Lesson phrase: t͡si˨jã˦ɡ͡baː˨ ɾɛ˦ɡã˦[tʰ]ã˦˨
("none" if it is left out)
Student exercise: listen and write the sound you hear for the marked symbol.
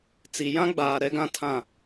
tʰ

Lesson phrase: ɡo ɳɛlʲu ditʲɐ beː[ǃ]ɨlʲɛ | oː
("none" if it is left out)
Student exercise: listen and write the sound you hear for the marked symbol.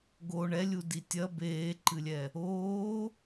ǃ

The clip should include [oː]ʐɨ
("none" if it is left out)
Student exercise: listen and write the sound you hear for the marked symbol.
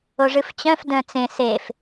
o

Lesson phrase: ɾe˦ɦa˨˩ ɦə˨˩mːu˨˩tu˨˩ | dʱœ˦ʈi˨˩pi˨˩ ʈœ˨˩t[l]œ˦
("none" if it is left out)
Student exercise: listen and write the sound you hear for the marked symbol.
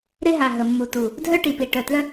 l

